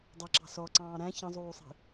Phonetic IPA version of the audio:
dˤʌǁɑ̤ sɔǀɑ̃ː ɾæ̃ çə̃zˤuːsˤi̤

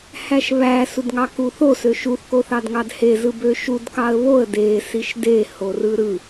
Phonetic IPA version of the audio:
hæʃβæ sudŋɑkuθo søʃuθ koθɑdŋɑdhe zɯbøʃud kɑə̯βoə̯ de siʃde horɯɾɯ

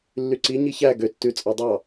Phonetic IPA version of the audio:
lːyǀi ɲiçæ ɡø tːʉ t͡sʼɑdˤɑ

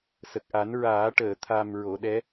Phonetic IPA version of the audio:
sə˨˩k̚ʔa˨˩˦n ɹaː˨˩˦ʈəː˨˩˨t̪ʰa˨˩m ɹo˨˩˨ɗɛ˧˥

